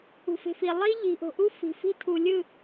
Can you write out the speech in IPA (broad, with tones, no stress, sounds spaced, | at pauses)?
ṳ˨ f e̤˨ f i˨ lˠ i˦ ʎ i̤˨ ʔ o̤˨ ʔ u˦ f i̤˨ f i̤˦ tʰ u˨ lʲ ɯ˦˨